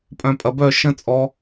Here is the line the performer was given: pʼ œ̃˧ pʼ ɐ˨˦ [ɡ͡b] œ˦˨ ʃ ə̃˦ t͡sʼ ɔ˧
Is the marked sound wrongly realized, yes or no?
yes